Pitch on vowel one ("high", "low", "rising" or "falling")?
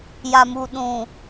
low